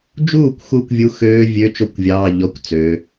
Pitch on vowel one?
falling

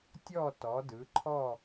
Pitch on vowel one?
falling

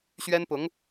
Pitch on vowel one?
high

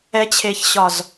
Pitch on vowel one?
rising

